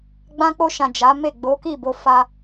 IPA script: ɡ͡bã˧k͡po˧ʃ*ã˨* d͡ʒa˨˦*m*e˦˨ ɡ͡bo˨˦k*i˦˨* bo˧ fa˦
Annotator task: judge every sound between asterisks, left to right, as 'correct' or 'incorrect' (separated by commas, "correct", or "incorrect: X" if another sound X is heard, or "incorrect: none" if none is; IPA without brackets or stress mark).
correct, correct, correct